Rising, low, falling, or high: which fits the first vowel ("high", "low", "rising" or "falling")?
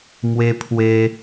high